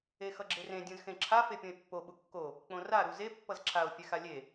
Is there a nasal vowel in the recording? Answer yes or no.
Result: yes